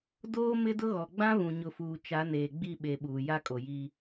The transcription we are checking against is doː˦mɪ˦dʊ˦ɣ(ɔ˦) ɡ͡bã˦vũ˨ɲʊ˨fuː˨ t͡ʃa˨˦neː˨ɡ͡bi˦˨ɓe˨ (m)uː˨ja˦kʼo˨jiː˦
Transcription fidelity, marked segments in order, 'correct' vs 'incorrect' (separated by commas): incorrect, incorrect